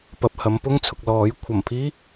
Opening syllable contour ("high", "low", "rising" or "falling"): low